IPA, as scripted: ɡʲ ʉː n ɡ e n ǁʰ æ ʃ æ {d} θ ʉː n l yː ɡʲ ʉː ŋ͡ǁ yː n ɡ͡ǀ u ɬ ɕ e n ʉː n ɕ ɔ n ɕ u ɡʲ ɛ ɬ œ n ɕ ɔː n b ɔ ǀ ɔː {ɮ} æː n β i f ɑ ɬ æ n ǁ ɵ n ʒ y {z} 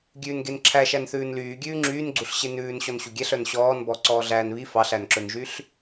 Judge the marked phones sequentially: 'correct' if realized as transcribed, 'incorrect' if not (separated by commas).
incorrect, correct, incorrect